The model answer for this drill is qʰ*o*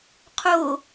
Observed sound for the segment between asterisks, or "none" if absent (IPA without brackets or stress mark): o